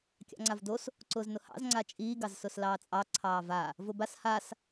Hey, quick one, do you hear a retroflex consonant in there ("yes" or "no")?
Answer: no